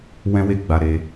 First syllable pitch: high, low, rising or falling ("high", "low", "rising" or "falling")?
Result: high